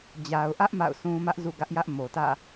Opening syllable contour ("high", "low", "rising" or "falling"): low